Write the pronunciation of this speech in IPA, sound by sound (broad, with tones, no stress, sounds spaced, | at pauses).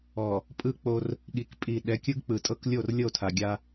ɔ˨ | pʼ ɯ˦ k͡p o˦ r | ɠ i˨ k pʼ i˨ ɗ ɛ˨˦ kʲ ɯ˦ ɡ k͡p ɯ˨ tʼ ɤ˦ k lʲ o˦˨ r lʲ ɤ˦˨ o̯ tʰ a˨ ɡʲ a˦